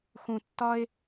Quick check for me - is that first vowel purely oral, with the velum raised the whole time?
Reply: no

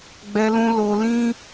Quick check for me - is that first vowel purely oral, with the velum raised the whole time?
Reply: yes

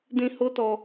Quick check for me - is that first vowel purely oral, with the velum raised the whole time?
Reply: no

